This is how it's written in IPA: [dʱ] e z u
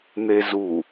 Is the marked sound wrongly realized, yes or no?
yes